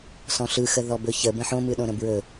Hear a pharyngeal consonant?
yes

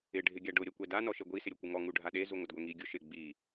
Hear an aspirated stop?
no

